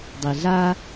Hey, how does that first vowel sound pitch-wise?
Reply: low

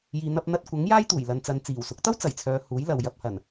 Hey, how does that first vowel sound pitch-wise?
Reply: low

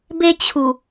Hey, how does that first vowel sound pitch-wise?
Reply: high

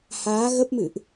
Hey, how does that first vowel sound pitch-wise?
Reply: rising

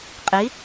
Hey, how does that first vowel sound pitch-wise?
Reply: rising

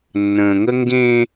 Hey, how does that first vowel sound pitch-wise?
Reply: low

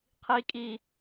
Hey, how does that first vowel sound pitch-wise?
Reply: rising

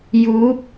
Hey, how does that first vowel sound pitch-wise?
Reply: rising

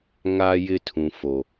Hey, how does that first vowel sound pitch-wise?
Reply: high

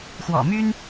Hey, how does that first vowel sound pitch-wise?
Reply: low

